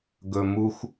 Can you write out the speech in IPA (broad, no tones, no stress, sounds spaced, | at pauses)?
ɡ ɵ m u x